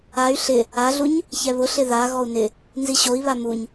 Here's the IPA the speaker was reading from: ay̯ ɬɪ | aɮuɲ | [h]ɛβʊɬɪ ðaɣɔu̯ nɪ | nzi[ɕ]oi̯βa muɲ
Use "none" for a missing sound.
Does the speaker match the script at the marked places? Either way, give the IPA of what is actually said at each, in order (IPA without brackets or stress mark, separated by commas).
ç, ɕ